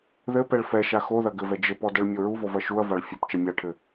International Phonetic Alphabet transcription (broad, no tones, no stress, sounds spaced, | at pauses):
ð ɘ p ɛ ɭ f ɛ ʃ a x o ð ɐ ɡ ɘ v ɛ d͡ʒ ɘ p ɔ d ɛ ɭ mʲ o ɹ u v ɔ v ɐ ʃ u ɐ̯ v a ɭ fʲ o p t͡ʃ ɐ mʲ a ʈʰ ɘ